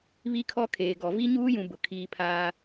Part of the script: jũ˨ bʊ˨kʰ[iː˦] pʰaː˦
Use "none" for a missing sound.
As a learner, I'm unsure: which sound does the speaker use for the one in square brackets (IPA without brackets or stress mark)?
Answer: iː˦